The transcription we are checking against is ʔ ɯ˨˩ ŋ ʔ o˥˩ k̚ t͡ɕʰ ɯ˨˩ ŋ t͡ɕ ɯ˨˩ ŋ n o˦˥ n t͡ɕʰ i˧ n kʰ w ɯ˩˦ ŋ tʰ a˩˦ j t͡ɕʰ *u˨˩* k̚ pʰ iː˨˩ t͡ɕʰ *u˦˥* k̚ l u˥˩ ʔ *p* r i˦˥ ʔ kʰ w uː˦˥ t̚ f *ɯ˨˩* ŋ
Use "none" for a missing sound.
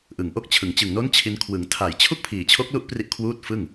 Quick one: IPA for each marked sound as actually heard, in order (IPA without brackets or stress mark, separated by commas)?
u˥˩, o˦˥, p, ɯ˥˩